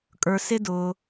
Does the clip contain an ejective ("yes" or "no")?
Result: yes